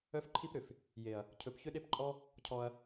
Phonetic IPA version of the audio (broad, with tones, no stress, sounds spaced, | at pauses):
œ˦ f ǃʰ i˦ p ɾ ʏ˨ f | j e˨ ɐ̯ | cʰ ɵ˨ p ç ʏ˦ ɗ e˦ p ǃʼ ɔ˦ | cʰ ɔ˧ ɐ̯